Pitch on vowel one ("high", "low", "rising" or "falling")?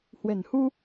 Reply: low